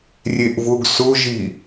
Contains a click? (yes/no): no